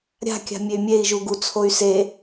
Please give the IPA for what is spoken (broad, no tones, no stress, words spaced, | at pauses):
ɾʲa̤kʲa̤ mʲey̯mʲei̯ʒu ɡut͡sʰoy̯ se